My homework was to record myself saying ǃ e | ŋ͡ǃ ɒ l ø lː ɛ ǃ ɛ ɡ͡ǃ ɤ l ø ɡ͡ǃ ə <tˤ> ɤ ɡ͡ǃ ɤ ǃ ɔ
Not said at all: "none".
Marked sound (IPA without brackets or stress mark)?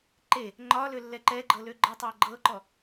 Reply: tˤ